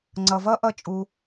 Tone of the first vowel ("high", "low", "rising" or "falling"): low